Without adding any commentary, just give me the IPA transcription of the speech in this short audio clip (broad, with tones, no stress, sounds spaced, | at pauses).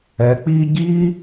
ɛ˨˦ k͡p iː˦ ɟ iː˦